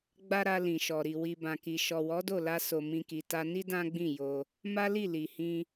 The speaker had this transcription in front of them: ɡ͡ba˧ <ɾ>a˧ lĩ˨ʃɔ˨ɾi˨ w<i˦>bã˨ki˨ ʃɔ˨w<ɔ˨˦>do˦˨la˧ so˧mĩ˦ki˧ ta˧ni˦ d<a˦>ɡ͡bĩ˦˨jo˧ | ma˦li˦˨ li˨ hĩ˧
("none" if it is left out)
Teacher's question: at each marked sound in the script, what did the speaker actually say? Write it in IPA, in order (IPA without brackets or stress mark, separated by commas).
ɾ, i˨, ɔ˨˦, ã˦